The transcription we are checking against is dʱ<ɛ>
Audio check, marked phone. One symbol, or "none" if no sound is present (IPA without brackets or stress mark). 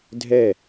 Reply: ɛ